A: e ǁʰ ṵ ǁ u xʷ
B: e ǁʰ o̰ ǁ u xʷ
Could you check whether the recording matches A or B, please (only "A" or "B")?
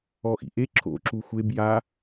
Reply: B